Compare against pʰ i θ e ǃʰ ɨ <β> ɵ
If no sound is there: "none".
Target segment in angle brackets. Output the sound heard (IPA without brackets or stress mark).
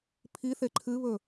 β